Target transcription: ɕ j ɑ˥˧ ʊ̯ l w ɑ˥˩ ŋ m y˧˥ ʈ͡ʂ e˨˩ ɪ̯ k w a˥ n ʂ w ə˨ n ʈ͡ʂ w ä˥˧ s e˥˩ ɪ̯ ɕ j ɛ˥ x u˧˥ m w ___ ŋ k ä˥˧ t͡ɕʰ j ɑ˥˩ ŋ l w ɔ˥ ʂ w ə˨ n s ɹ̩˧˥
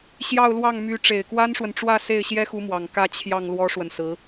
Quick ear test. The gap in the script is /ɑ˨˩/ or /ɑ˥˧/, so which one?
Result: ɑ˨˩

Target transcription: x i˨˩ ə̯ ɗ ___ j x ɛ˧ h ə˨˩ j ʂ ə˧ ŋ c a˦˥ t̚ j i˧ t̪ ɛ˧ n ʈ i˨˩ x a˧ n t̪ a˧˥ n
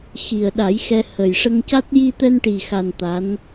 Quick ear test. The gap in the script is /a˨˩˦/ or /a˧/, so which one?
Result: a˨˩˦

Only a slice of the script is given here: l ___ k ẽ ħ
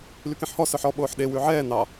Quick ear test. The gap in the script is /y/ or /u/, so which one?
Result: y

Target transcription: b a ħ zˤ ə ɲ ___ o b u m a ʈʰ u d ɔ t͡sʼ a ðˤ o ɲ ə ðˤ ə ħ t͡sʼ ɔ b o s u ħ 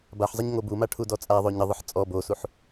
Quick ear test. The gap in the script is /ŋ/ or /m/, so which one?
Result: ŋ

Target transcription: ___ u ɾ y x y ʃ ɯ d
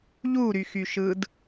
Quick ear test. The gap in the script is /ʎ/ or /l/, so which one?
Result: ʎ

